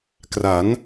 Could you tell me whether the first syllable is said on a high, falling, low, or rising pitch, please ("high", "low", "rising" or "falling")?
rising